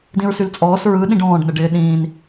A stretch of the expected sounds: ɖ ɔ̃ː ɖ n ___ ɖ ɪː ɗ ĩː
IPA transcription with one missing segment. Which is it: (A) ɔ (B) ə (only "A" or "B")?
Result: B